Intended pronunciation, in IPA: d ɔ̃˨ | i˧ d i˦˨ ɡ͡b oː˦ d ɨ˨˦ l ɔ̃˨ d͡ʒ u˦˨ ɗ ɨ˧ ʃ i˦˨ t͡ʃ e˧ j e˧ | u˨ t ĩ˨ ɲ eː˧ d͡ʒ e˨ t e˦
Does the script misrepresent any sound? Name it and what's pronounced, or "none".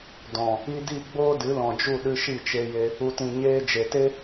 none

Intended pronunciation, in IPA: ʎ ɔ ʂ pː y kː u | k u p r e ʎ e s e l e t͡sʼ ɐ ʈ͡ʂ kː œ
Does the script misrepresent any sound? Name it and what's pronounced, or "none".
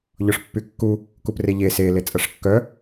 ʈ͡ʂ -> ʂ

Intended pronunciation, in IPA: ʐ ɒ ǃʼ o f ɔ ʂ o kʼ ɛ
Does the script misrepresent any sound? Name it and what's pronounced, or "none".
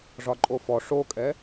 none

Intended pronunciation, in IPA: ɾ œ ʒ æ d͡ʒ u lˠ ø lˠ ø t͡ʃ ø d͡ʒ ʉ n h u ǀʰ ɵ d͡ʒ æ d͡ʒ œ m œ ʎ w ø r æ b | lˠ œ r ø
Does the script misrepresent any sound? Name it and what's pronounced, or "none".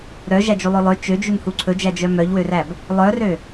none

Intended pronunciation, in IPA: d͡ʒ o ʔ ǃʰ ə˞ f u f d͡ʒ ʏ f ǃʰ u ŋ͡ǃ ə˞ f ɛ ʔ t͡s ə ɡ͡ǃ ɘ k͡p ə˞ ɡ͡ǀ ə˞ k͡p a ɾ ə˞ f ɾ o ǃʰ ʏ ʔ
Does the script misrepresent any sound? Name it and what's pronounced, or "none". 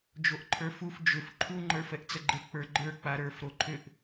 ɡ͡ǀ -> ɡ͡ǃ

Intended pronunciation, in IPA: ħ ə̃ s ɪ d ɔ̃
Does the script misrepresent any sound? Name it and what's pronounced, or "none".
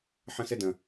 ɔ̃ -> ə̃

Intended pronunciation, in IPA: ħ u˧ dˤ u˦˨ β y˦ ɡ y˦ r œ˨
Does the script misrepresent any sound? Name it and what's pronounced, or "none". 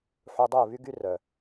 none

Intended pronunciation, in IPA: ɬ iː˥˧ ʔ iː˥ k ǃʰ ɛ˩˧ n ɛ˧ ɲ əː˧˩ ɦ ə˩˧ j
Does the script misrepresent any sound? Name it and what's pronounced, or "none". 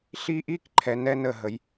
ɲ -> n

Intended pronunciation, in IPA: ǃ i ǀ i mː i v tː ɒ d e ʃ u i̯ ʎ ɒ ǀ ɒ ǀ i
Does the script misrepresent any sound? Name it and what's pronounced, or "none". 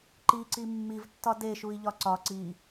none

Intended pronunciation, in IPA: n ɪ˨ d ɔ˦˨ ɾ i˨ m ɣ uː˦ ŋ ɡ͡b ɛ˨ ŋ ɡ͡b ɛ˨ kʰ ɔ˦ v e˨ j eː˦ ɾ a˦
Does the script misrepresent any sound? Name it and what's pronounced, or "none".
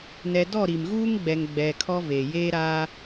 ɪ˨ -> ɛ˨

